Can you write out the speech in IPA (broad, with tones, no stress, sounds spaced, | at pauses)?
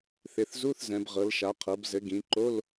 θ ɪ˩˧ θ z u˧˥˧ θ z ɛ̃˩˧ b ʁ ɤ˩˧ l ʃ a˩˧ qʰ ɤ˩˧ b z ɘ˩˧ ɡ ĩ˩˧ ǃ o˧˥˧ l